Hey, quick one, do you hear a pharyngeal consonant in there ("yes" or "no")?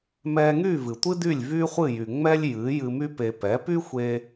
no